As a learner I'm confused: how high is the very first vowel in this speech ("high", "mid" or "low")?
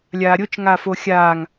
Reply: low